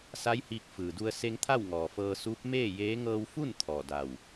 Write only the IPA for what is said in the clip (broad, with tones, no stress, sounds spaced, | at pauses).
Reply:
s a˧˥ j h iː˧ k̚ f ɯː˩ d u˧ ə̯ s e˧ ŋ t̪ʰ a˥˨ w ŋ ɔː˩ f ɤː˧ s uː˧˥ p̚ m eː˥˨ j eː˧˥ ŋ ɤː˧ w f u˥˨ n t̪ʰ ɔː˧˩ d a˧˩ w